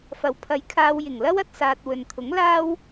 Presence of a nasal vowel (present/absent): absent